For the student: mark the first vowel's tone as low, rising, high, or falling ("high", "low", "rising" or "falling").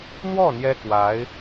falling